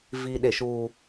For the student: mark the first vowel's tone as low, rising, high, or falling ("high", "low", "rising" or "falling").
high